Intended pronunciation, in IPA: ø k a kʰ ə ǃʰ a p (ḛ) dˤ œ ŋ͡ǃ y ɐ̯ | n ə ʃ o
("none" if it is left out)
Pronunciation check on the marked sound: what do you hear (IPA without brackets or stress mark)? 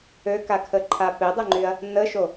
e